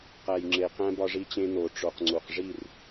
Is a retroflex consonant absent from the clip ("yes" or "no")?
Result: no